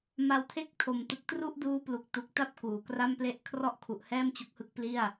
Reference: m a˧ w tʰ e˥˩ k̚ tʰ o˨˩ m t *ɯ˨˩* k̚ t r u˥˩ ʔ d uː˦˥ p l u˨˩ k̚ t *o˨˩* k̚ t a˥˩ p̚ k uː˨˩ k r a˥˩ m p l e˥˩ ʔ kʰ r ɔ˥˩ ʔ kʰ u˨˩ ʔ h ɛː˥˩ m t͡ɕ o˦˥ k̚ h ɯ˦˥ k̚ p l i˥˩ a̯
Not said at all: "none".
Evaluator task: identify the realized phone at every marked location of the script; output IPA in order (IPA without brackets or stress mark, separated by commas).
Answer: ɯ˨˩, u˨˩